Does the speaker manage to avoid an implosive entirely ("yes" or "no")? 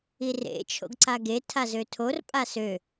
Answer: yes